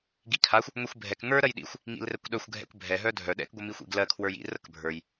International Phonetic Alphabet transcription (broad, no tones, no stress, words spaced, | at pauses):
ɡikʰaxʷ | ŋʷixʷbʱɛk ŋə˞ ɾɜjɗḭxʷ | ŋḭlrɛkʷɗœxʷ ɡʱɛ̰kʷbʱɛ ɦœdʱœ ɗɛ̰k ɡʷəmixʷḭɡlɜ kʰwə˞jḭ rəkbʱə˞j